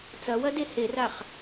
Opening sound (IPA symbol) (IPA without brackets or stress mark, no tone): t͡s